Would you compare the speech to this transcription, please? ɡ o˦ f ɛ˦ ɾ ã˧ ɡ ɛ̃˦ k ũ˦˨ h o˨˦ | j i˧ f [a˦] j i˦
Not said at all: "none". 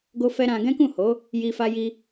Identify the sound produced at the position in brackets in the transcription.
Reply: a˦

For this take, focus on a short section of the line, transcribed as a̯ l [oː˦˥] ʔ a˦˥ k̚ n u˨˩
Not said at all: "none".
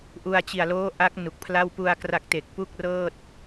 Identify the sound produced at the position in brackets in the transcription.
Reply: oː˦˥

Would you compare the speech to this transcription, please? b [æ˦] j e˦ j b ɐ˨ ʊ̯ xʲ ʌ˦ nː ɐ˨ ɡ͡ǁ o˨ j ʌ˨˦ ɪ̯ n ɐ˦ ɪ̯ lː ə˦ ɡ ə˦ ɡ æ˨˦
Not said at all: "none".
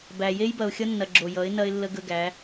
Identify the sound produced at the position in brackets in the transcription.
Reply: æ˨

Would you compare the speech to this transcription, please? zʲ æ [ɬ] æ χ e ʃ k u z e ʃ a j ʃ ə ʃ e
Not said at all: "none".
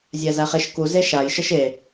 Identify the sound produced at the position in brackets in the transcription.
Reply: z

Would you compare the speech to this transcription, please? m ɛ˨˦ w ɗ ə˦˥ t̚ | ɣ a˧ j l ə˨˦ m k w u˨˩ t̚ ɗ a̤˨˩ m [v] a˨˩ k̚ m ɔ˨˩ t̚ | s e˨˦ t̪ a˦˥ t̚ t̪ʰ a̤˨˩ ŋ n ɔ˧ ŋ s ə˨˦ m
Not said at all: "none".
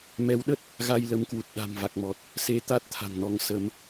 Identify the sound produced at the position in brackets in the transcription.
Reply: v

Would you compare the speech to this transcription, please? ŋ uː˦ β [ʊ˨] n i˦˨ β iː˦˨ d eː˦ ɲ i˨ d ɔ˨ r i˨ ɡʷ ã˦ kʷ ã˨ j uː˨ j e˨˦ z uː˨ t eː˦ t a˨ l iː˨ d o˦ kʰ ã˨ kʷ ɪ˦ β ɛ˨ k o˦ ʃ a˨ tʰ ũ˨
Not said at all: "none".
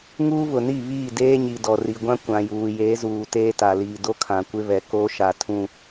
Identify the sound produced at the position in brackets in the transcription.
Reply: ʊ˨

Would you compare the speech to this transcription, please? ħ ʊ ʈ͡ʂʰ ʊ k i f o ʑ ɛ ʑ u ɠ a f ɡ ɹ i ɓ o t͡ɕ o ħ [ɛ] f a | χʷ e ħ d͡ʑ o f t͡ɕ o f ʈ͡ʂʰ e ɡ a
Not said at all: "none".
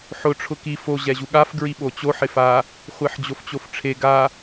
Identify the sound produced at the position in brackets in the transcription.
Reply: ɪ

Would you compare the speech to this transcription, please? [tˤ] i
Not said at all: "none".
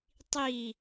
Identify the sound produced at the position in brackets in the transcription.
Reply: tˤ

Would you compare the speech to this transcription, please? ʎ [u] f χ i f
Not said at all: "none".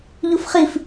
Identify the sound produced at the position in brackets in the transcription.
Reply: u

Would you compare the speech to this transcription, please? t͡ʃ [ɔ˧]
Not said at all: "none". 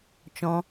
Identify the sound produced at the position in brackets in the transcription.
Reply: ɔ̃˧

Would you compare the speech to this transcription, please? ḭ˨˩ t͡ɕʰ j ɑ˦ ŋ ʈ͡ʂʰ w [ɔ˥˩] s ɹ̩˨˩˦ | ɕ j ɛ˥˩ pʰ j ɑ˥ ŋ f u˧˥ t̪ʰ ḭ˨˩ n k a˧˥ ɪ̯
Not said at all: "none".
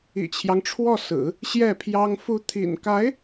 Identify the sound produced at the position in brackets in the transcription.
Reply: ɔ˥˩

